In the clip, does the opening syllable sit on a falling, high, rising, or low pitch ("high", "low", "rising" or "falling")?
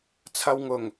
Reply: low